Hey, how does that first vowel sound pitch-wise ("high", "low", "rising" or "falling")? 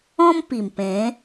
high